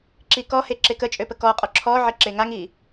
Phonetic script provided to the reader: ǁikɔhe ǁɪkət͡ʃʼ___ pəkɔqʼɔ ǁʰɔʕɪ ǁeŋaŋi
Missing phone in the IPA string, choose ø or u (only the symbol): ø